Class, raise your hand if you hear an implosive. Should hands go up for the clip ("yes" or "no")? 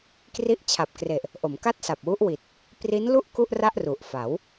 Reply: no